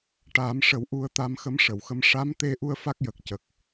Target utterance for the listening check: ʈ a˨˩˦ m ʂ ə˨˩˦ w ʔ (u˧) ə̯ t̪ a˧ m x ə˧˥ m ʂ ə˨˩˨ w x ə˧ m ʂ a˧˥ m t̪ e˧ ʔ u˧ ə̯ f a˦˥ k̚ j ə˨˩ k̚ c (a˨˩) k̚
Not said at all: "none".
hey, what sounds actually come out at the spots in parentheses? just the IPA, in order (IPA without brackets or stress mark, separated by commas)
u˧, ə˨˩